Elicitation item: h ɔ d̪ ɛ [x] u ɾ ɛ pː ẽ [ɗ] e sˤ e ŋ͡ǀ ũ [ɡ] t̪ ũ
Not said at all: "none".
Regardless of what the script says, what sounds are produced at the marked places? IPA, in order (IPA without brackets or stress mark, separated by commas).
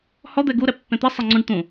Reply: ɡ, t̪, ɖ